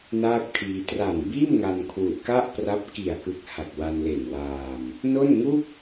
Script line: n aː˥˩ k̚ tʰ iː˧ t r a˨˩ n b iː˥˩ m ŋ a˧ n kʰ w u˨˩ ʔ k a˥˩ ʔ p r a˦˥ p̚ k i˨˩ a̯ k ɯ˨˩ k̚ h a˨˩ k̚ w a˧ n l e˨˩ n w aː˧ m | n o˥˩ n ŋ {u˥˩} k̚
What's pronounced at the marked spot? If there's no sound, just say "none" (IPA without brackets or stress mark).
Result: u˥˩